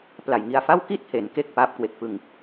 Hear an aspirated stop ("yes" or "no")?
no